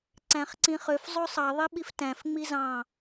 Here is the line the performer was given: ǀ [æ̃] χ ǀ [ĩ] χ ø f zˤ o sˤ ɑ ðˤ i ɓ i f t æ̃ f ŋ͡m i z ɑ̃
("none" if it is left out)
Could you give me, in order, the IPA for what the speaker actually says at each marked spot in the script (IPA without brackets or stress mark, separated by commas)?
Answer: æ̃, ĩ